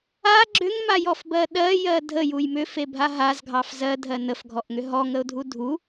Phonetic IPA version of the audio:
a ɡ͡ǁ ʏ ŋ m a j ɔ f b ɜ ɗ ɜ j ɜ dʱ ə j u j m ʏ f e bʱ a ɦ a z ɡʱ ɑ f z ɜ dʱ ɜ n ə f ɡʱ ɔ ʔ ŋ ʏ ɦ ɔ ŋ ə ʊ̯ dʱ u dʱ u

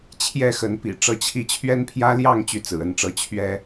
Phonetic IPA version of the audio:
t͡ɕʰ j ɛ˥˨ x ə˨˦ n p ḭ˨˩ ʈ͡ʂ ɤ˥˨ t͡ɕʰ i˥˨ t͡ɕʰ ɥ ɛ˦ n pʰ j ä˦ l j ɑ˥˨ ŋ t͡ɕ y˦ t͡s ɹ̩˨˩ ə˥˨ n ʈ͡ʂ ɤ˦ t͡ɕʰ ɥ ɛ˦

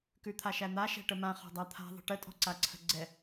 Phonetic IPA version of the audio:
k ʉ t̪ʰ a ʃ æ n̪ a ʃ ɛ̤ ʈ ə m ã χ ɔ̤ dˤ a t̪ʰ a̤ ðˤ ə̤ ʈ ə tʼ ɔ̤ ǀ a ǀʰ ə̤ ɡ͡ǀ ɛ

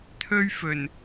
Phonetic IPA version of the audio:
t̪ʰ ɵ˧ ɥ f ɵ˨˩ n

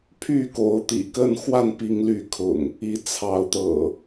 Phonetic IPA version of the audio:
pʰ y˥˨ k o˨˦ ʊ̯ t̪ ḭ˨˩ k ə˥˨ n x w a˥˨ n p i˨˦ ŋ l y˨˦ kʰ ʊ̰˨˩ ŋ | i˨˦ t͡sʰ ɑ˨˦ ʊ̯ t̪ ɤ̰˨˩

